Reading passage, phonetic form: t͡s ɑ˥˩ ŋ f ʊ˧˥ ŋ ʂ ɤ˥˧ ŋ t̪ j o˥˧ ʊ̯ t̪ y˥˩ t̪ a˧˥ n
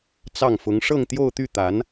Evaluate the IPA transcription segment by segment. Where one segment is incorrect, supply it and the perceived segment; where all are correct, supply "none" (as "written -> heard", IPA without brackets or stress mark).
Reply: none